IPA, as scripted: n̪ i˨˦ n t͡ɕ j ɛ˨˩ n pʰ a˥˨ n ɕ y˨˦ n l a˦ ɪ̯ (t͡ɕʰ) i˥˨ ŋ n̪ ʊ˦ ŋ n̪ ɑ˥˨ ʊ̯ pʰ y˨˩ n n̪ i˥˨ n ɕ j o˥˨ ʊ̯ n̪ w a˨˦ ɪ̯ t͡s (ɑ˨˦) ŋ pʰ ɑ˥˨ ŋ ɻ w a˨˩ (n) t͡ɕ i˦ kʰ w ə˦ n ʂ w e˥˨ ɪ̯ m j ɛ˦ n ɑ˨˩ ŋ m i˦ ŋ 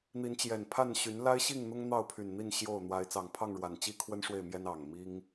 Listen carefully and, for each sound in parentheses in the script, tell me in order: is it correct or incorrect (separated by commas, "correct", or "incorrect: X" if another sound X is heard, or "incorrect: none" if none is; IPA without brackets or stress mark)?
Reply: incorrect: ɕ, incorrect: ɑ˨˩, correct